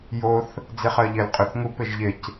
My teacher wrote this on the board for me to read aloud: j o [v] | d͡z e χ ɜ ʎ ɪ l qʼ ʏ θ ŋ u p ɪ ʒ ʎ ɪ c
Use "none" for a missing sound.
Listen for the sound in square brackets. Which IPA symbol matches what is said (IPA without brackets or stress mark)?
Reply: θ